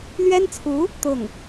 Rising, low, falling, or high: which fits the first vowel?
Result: high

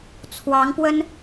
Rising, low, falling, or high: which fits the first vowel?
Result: rising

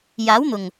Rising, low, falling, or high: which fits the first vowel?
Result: rising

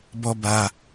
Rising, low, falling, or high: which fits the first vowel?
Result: high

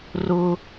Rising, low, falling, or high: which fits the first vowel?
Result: high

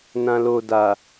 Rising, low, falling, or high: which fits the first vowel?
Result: low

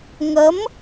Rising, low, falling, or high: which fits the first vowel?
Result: rising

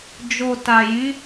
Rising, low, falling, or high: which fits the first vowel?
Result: low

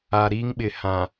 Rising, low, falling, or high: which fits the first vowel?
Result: low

